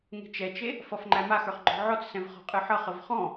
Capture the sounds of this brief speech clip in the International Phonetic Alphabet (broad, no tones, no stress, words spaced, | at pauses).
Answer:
ŋe̤t͡ʃɛt͡ʃe | fʌfŋ͡ǃæmaxə˞χ ɡ͡ǃɔ̤ʕɔt͡ssɛ̃v χɔ̤qʼɨħʌχəv χɔ̃